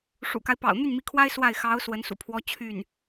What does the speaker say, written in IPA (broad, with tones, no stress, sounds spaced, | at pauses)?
ʂ ṵ˨˩ k a˦ ɪ̯ p ɑ̰˨˩ ʊ̯ n̪ y˥˩ n m i˧˥ kʰ w a˥ ɪ̯ s w a˥˩ ɪ̯ x ɑ˧˥ ʊ̯ s w ə˧˥ n s ṵ˨˩ pʰ w ɔ˥ t͡ɕʰ y˥˩ n